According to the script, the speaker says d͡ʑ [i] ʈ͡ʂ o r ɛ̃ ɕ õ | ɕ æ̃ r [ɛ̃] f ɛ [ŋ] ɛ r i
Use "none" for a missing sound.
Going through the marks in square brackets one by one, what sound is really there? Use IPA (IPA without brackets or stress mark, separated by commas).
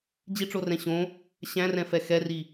i, ɛ̃, x